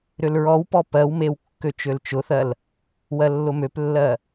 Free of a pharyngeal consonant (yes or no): yes